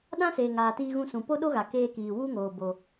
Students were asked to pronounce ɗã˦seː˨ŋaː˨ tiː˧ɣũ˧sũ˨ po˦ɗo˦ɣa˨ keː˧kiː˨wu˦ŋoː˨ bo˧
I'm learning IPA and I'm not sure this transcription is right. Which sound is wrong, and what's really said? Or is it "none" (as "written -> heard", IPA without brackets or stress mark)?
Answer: none